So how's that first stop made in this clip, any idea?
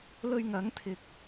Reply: aspirated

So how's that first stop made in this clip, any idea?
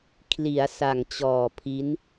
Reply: aspirated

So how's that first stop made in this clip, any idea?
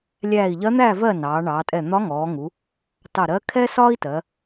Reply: ejective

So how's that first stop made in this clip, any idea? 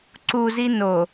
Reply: click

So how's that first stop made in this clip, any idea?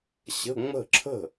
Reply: click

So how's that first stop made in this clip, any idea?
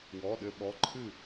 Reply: implosive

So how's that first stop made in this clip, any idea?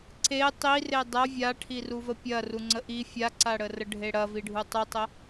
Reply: click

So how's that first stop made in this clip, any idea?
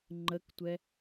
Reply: click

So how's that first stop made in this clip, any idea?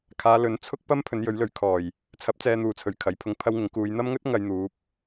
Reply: aspirated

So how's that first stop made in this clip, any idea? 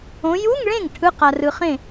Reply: aspirated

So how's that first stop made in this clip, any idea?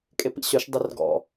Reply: ejective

